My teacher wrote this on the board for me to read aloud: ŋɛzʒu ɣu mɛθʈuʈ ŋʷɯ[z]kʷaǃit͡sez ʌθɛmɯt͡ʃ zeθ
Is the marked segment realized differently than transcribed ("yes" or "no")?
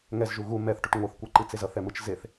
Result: yes